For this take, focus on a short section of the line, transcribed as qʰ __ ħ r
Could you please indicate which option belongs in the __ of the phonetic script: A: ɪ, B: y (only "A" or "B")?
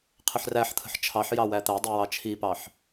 A